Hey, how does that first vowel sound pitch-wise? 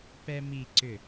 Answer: high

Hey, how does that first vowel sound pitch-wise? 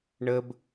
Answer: high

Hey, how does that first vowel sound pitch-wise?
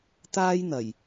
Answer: high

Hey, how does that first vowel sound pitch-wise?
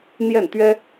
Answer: falling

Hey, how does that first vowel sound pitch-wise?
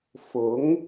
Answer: rising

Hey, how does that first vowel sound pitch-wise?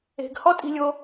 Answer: low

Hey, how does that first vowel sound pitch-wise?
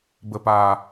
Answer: low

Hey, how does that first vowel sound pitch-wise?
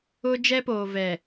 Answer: high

